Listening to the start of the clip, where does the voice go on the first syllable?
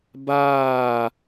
falling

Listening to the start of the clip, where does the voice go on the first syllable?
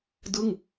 falling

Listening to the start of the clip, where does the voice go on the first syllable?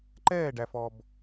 falling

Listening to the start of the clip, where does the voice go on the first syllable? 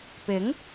rising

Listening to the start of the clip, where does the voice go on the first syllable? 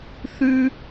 high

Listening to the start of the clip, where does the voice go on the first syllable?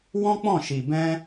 high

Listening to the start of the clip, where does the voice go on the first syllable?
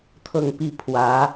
falling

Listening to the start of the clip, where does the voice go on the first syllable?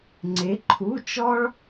rising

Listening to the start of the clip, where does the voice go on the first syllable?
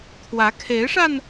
rising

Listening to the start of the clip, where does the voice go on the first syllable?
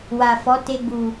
low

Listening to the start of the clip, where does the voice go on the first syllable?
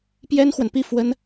high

